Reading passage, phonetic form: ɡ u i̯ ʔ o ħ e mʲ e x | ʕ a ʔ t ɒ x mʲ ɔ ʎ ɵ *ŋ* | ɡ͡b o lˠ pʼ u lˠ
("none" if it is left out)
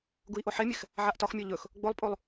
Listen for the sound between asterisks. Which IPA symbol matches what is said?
x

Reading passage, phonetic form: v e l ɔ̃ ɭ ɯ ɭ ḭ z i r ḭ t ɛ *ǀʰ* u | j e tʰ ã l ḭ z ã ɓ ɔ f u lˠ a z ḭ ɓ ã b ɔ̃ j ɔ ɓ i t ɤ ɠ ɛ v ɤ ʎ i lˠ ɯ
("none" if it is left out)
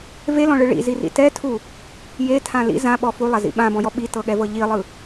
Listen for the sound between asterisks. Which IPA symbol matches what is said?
tʰ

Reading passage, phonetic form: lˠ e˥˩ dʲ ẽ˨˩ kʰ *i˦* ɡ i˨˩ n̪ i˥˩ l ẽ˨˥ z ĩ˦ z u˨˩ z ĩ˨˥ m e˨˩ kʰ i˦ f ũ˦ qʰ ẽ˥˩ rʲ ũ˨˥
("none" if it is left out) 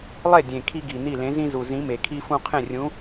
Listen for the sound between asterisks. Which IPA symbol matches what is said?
i˦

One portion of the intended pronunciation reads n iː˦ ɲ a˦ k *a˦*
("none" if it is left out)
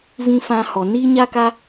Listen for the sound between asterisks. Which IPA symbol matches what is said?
a˦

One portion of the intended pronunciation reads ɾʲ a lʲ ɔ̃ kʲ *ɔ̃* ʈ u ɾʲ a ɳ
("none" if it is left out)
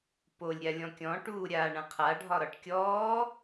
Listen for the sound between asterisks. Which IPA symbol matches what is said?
ɔ̃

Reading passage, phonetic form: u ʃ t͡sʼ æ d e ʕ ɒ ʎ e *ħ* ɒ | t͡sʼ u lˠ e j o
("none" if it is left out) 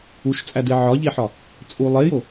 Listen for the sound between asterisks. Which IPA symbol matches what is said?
ħ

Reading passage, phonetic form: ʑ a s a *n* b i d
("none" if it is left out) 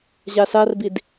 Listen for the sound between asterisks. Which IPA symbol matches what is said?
r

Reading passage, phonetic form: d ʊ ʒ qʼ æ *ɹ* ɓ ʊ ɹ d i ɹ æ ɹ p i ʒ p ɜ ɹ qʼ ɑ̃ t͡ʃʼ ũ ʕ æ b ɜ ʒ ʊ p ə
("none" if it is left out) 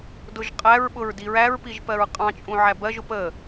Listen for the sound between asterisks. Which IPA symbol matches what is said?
ɹ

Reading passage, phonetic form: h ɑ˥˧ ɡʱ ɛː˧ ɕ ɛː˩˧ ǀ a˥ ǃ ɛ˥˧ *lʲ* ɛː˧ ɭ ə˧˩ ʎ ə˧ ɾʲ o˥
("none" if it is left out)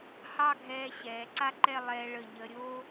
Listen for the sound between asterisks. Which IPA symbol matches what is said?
lˠ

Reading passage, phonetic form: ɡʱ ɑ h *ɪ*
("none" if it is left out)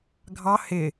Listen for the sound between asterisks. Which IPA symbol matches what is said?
ɪ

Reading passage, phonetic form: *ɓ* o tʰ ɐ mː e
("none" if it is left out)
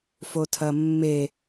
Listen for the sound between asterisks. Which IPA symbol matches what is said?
f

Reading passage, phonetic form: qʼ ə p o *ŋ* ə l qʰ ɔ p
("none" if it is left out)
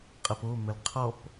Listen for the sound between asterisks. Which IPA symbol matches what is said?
m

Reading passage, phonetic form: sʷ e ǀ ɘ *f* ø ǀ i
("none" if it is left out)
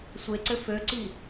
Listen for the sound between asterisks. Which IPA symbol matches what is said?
f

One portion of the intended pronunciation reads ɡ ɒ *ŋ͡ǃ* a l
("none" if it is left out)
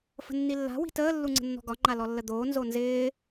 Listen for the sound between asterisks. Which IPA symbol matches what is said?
ŋ͡ǃ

